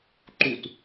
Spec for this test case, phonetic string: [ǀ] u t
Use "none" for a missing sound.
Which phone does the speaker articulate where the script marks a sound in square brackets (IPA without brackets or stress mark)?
ǃ